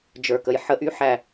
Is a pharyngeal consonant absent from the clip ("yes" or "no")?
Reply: no